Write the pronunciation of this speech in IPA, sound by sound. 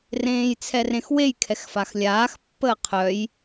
r ẽː j t͡sʰ ɛ r ẽ x w e j kʰ ɛ x f a x lʲ aː x pː əː qʰ œ j

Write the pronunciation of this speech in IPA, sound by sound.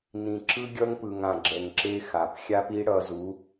n ĩ˨ ǁ ɯ˦ ɡʲ ʌ˦ ŋ p ɯ˨ ŋ ã˨ ɡ͡ǁ ɛ˨ ŋ ǁ e˧ x a˨ p xʲ a˦ p i˦ ɽ ʌ˧ z u˨˦

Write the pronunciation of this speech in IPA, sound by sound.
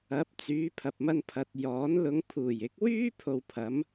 ɐ˨˥ p̚ t͡s yː˨˧ pʰ ɐ˨ p̚ m ɐ˧ n pʰ ɐ˨ t̚ j ɔː˨˥ n l ʊ˨˧ ŋ pʰ uː˨˩ j ɪ˨˥ k̚ w yː˥ pʰ o˧ w pʰ ɐ˨˥ m

